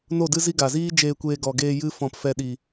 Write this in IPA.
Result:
no˦˨dɨ˦zi˦ ɡa˨ziː˦ d͡ʒeː˧kʷeː˧ ɡɔ˨ɡeː˧ jɨ˦ fɔ̃˨p fɛ˧ɗi˨

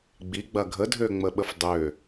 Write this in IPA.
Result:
ɡ͡biɡ͡bɐ ɡʱədʱøŋ͡məɓəf dˤø

